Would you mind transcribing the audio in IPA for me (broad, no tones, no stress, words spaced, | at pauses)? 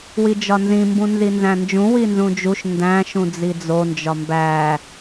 wid͡ʒɒnzĩ mbũnzinzæ̃nd͡ʒũ winzũd͡ʒuʃ ndæ̃ʃũd͡zi d͡zond͡ʒɒ mbæ